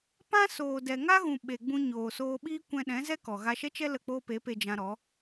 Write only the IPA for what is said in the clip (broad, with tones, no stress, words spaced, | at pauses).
pã˦soː˨ dɛ˨ŋa˦ɣũ˨ ɓe˨ɡ͡bũ˧ ɲoː˨soː˧ɓiː˦ kʷɛ̃˧ɗɛ̃˨˦ zɛ˦kɔ˨ ɣa˧ʃɛ˦t͡ʃɛ˦ lə˦˨k͡poː˦pe˨˦pe˧ d͡ʒã˧ ɾɔ˨˦